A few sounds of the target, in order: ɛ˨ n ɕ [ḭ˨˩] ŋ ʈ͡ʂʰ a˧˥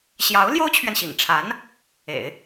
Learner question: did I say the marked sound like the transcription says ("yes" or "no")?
yes